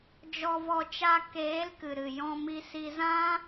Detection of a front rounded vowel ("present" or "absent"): absent